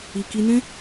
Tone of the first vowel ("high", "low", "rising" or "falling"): low